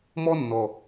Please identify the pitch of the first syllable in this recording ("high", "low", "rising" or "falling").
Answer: high